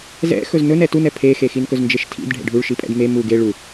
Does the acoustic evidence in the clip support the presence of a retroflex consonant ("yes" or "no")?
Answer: yes